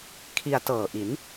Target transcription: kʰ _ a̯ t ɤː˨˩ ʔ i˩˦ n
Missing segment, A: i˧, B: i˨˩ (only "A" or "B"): A